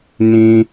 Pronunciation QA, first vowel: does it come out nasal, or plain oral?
nasal